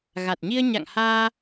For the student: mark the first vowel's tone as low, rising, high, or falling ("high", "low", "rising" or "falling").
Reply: low